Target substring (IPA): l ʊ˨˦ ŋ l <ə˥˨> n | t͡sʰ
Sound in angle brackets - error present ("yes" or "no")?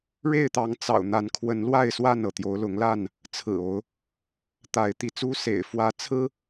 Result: yes